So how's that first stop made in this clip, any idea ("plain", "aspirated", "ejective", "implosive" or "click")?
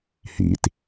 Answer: plain